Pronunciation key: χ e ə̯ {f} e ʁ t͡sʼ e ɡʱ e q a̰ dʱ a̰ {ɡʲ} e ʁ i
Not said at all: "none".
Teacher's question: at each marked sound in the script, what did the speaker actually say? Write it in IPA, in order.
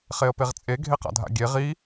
p, ɡʲ

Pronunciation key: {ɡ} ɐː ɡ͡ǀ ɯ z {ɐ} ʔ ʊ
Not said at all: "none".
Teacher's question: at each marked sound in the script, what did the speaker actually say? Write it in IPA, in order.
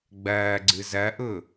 ɡ͡b, ɐ

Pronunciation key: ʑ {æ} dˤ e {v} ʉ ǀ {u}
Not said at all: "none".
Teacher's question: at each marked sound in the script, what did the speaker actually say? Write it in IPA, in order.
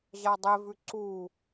a, v, u

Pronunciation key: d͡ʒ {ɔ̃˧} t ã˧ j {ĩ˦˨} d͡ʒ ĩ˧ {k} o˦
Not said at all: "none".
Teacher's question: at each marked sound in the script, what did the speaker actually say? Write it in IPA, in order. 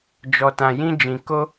ɔ˧, ĩ˦, k

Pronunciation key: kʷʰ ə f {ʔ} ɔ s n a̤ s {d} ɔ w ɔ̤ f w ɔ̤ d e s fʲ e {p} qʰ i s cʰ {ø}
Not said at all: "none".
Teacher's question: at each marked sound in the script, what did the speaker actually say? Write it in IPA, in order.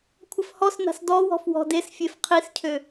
h, d, f, ø

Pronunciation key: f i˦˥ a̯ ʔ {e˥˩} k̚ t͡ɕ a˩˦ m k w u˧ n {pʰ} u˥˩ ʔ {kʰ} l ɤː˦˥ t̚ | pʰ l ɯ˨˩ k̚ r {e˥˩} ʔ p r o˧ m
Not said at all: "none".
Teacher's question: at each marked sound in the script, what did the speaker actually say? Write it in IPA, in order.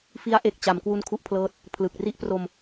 e˨˩, kʰ, pʰ, i˥˩

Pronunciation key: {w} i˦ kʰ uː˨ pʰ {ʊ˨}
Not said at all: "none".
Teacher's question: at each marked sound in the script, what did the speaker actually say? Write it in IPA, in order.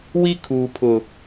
w, ʊ˨

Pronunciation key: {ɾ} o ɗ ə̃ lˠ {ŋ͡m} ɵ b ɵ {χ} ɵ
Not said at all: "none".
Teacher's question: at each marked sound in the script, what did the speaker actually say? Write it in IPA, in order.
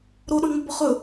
ɾ, ŋ͡m, χ

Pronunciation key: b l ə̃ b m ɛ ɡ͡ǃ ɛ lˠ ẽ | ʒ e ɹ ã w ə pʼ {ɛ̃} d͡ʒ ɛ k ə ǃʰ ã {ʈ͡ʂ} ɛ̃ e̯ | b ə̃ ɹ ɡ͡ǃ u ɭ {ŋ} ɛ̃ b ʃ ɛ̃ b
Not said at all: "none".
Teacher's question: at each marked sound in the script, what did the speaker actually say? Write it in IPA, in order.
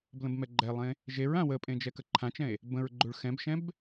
ẽ, t͡ʃ, x

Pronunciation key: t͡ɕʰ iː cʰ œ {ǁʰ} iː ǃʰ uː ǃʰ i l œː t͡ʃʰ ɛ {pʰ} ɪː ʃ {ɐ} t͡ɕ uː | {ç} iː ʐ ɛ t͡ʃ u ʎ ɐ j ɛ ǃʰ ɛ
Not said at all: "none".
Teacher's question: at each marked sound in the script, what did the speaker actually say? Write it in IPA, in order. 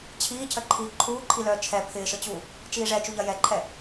ǃʰ, pʰ, ə, t͡ʃ

